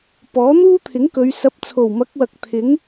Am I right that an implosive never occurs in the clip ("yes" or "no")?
yes